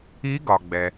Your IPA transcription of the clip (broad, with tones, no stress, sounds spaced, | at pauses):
i˧˥ ɡ ɒ˩ ɡ͡b ɛ˩